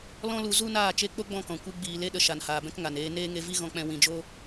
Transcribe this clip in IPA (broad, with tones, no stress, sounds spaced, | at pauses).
l ɔ̃˦ l u˧ z u˦ n aː˦˨ t͡ʃ e˧ k͡p o˦ ɡ͡b ɔ̃˦˨ k ɔ̃˨ kʷ ɨ˧ ɡ͡b iː˨ l e˧ ɗ ə˨ ʃ a˨ n h aː˨ b ɛ̃˦ k ŋ a˨ n eː˧ n eː˦ ŋ e˧ v i˦ ɣ ɔ̃˧ k͡p ɛ̃˧ w ĩ˨ d͡ʒ o˧